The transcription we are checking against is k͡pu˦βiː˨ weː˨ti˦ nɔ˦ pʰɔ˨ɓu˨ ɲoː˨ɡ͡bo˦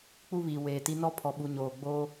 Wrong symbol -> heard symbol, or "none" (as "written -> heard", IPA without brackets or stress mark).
o˦ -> oː˦